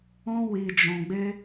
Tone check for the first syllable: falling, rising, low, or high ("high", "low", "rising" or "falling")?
high